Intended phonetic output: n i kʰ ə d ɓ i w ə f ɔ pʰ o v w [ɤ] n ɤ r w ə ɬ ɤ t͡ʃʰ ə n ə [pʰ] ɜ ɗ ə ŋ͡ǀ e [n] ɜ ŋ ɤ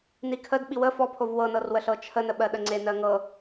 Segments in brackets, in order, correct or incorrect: correct, incorrect: ɓ, correct

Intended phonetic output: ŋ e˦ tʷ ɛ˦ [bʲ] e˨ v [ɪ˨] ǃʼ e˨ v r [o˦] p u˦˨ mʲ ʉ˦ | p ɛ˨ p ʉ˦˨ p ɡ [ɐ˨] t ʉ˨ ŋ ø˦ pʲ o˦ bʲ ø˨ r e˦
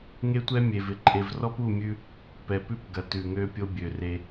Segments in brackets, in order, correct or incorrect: incorrect: mʲ, correct, incorrect: ɔ˦, correct

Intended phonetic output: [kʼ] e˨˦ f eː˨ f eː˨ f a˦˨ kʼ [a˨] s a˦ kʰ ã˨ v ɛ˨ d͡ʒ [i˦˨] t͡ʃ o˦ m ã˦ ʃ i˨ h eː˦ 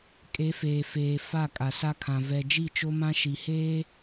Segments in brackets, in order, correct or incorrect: correct, correct, correct

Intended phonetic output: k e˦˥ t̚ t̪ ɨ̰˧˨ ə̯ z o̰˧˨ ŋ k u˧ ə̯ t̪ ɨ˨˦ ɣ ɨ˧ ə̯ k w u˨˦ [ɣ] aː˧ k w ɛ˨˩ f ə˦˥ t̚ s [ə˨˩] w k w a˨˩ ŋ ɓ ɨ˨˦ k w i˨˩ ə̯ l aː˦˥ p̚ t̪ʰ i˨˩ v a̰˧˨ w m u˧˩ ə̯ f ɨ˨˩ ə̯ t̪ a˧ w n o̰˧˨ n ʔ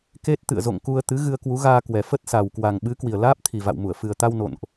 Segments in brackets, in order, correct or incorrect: correct, incorrect: a˨˩

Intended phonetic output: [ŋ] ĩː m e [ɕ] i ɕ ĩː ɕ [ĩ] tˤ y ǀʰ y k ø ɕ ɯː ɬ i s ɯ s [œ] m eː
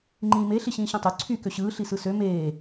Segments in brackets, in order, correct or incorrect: incorrect: ŋ͡ǃ, incorrect: ɬ, correct, incorrect: ø

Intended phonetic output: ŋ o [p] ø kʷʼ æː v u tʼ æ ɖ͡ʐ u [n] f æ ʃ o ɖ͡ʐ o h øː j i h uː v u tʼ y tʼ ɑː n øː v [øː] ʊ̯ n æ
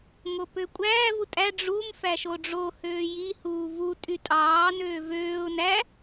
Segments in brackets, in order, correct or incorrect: correct, incorrect: m, correct

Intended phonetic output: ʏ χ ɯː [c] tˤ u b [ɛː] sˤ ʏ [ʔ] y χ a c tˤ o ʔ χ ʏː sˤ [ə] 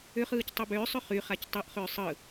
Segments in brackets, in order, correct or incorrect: correct, incorrect: ʏː, incorrect: χ, incorrect: ɯ

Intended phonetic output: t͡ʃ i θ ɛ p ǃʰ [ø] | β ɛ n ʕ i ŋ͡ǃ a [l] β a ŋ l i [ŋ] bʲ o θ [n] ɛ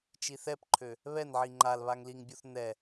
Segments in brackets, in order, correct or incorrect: correct, correct, correct, correct

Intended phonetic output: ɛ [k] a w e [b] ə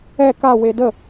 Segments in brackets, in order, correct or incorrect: correct, incorrect: d

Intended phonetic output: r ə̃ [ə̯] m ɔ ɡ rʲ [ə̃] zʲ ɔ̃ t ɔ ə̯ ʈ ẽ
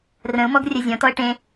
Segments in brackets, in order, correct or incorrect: incorrect: ʊ̯, incorrect: ə

